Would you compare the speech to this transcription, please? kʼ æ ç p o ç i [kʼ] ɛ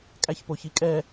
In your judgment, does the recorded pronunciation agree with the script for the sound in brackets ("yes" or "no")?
yes